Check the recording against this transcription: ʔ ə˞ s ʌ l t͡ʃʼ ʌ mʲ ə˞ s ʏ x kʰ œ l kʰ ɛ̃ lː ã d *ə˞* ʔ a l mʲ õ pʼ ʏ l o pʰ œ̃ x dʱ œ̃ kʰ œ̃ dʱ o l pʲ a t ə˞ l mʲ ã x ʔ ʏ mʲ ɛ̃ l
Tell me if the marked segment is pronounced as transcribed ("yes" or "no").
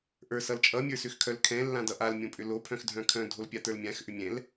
no